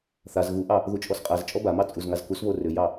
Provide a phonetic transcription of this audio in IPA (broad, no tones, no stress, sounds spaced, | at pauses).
θ a z ɣ u ʔ ɑ | ð u t͡ʃʼ ɔ s qʼ a z t͡ʃʼ ɔ b a m ɑ t͡sʼ u z ŋ a z k u s β o r ʏ j ɑ